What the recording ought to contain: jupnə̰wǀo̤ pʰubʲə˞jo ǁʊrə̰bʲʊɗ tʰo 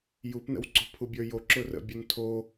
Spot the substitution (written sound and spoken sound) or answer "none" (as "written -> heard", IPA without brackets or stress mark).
ɗ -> n